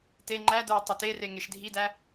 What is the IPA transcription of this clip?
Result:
te ŋ͡ǃædə˞ʊ̯ tˤɪtere ŋeʃdʱidæ

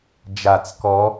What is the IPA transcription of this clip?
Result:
d͡ʒat͡s kɔ

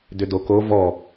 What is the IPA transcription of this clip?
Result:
dʏdoko vɔ

